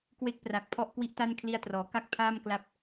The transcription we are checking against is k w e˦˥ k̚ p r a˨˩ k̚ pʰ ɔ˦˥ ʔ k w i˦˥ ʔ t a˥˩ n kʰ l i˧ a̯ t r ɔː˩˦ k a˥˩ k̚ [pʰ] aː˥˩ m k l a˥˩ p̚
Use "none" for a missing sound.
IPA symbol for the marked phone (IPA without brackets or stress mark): pʰ